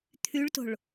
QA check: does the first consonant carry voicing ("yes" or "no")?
no